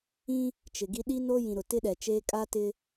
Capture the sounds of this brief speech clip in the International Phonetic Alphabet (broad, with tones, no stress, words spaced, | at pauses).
ĩ˦ | t͡ʃɪ˨ɡi˦ ɗi˦ no˦jĩ˨ ɾʊ˨tɪ˦ɗɛ˨t͡ʃeː˦ kʼa˦tɪ˦